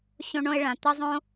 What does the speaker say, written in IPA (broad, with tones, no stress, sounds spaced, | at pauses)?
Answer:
ɕ õ˦ ɳ õ˦ ɪ̯ ɭ ã˨ t̪ ə˦ zˤ õ˦